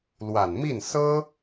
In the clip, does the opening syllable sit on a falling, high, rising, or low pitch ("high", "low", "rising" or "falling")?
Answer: low